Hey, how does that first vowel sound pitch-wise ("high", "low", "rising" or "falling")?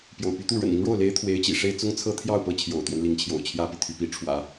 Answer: low